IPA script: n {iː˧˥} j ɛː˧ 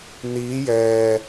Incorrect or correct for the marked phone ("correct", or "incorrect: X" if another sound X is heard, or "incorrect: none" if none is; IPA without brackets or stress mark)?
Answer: correct